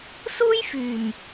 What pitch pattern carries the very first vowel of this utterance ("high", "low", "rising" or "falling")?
high